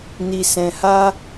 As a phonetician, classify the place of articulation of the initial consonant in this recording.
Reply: alveolar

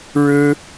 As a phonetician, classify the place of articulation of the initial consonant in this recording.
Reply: retroflex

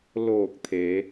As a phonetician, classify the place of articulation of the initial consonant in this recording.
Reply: alveolar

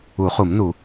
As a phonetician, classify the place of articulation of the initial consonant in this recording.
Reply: uvular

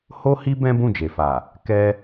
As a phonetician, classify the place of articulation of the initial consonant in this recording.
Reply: glottal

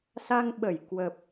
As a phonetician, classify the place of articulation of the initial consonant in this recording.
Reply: alveolar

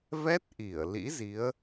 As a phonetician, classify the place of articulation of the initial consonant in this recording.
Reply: labial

